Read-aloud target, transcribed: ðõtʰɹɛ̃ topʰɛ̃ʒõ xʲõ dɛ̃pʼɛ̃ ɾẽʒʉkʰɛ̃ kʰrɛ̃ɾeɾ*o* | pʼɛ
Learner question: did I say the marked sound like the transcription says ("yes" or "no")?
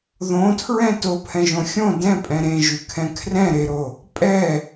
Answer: yes